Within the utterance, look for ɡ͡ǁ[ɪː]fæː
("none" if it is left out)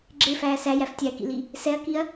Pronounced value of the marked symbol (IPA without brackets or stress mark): ɪː